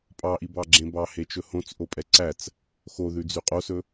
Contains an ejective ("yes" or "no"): yes